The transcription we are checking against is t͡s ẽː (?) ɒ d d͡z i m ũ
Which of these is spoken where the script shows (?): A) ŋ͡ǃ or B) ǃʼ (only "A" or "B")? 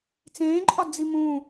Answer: B